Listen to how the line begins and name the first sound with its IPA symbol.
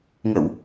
ŋ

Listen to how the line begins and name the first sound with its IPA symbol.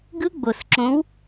ɡ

